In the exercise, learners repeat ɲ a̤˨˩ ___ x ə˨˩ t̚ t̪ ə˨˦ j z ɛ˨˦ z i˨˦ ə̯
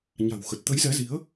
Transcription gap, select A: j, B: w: B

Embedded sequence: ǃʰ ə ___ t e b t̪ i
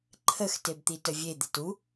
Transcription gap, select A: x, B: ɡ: A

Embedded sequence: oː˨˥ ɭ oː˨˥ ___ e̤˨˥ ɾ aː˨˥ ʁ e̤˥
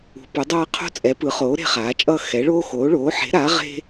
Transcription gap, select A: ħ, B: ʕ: A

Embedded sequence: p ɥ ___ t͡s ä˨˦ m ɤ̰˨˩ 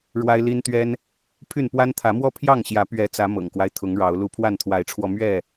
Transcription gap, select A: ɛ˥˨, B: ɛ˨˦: B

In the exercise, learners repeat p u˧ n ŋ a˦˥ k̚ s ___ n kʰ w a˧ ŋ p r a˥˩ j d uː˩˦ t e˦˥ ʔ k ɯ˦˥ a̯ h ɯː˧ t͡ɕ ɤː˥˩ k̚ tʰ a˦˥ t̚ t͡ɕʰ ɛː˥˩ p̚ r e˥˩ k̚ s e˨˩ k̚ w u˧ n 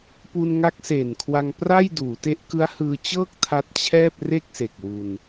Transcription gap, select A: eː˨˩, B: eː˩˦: A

